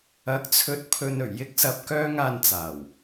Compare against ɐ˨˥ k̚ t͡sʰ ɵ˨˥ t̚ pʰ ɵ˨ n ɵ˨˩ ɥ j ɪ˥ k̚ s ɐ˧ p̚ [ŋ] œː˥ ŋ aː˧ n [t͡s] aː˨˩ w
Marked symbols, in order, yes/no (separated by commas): no, yes